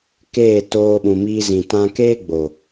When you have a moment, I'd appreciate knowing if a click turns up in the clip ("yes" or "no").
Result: no